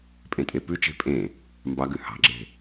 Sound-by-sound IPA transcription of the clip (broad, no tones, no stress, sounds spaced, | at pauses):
pʼ ẽ tʼ e p ʉ t͡ʃ e̤ pʼ ẽ | m b ɑ ɡ ʉ h ɑ̤ ɡ͡ǁ e̤